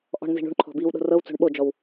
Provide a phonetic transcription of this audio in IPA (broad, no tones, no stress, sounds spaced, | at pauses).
ʔ ɔ̤ ɳ n z i̤ ɳ ṳ ɳ ǃʰ ɔ̤ b i w ɗ o̤ r ɤ w t͡s o̤ ɳ ɓ o d͡ʒ ɔ w